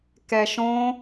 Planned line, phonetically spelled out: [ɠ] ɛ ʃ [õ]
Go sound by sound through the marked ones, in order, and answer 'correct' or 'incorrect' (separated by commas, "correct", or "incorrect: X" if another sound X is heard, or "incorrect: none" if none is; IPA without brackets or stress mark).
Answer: incorrect: k, correct